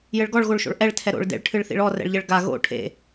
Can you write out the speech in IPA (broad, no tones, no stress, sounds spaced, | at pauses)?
j ɘ ɭ ɡ ɔ ɭ ɣ o ɭ ʃ o̰ ɭ ʔ ɛ ɭ tʰ ɛ ɾ o̰ ɭ d ḛ ɭ ʈʰ ɨ ɭ θ ḭ ɭ ɔ r ɛ̰ ɭ ʎ ɘ ɭ ɡ a ɣ o̰ ʈʰ ḛ